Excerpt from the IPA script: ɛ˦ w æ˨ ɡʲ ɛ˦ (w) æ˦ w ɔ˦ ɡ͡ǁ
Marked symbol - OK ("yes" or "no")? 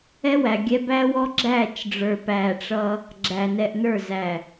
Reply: no